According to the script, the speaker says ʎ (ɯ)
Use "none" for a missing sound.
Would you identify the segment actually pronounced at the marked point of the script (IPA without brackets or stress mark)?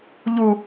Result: u